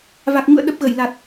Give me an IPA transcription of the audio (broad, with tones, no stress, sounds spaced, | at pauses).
v a˨˩ k̚ ɲ ṵ˧˨ ə̯ ɗ ə˦˥ p̚ ɣ ə˧˩ j l a˨˩ t̚